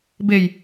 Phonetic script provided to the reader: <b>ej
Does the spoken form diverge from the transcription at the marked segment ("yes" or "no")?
no